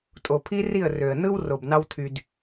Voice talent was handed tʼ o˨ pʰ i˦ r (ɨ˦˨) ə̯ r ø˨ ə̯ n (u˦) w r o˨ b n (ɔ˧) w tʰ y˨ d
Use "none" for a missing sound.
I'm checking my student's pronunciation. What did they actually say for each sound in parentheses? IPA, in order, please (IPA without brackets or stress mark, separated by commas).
i˦˨, ɯ˦, ɑ˧